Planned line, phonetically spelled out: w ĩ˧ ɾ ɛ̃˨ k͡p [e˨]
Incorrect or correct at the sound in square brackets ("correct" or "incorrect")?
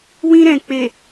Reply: correct